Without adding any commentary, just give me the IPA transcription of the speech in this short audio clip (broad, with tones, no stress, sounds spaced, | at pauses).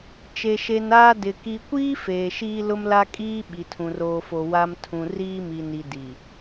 t͡ʃ e˨ ʃ e˨ n aː˦ d ɪ˨ k i˨ kʷ iː˦ f eː˨ ʃ iː˦ l ʊ˦ m l a˦ kʼ iː˦ ɓ i˨ tʰ ũ˨ r oː˨ f o˨ w a˨ m tʰ ũ˨ r iː˦ m i˨ n i˨ d i˨